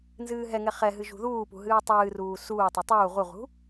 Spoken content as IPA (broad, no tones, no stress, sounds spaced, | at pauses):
n z ɨː ɦ ɛ ŋ ɛ χ ɛ ɦ ɨ ʒ ṳ ð uː p ṳ ɦ ɨː tˤ ɨː r uː s uː tˤ ɨ tˤ uː ʁ u ʁ ṳ